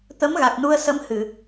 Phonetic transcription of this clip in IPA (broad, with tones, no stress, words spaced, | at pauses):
t̪ə˧˥mɣa˨˩k̚nu˧ə̯sə˧˥m hɨ˨˩˨